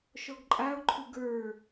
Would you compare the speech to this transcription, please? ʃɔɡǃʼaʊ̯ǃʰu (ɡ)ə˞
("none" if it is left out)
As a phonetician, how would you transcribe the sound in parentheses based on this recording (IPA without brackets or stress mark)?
ɡ